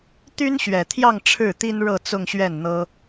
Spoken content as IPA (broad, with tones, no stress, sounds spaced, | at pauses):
t̪ y˥ n ɕ ɥ ɛ˨˩ t̪ʰ j ɑ˥˧ ŋ ʈ͡ʂʰ ɻ̩˥˩ t̪ i˥ n ɻ ɤ˥˧ t͡s ʊ˥˧ ŋ ɕ ɥ ɛ˥˩ n n̪ ɤ˥